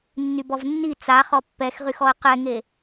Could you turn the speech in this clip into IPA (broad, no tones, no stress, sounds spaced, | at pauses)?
nː y b ɔ v nː i t͡s a χ ɔ pː ɛ x ʁ y x ɔ ə̯ q ɛ ŋ e